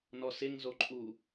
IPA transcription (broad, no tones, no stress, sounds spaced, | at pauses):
n ɔ s ɪ ŋ z o ǃʼ u